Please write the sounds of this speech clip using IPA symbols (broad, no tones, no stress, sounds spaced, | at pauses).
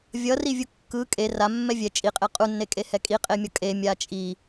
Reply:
vʲ ʌ r i vʲ u kː ɯ kʼ e r a mː ɛ vʲ ɛ t͡ʃʼ i qʼ e qʼ u nː e kʼ e h ɛ kʼ i qʼ e mʲ ʌ kʼ e mʲ a t͡ʃʼ i